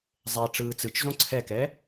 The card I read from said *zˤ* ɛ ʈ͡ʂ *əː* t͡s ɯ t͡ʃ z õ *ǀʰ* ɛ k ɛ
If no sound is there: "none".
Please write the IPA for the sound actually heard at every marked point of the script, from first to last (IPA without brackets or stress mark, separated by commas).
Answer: zˤ, ɯː, ǀʰ